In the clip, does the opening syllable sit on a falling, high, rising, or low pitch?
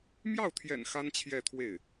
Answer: falling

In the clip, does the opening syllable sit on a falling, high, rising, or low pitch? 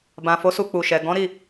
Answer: low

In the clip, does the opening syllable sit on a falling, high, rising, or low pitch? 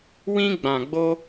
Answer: high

